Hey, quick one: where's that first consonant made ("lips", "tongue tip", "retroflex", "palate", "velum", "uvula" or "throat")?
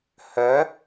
throat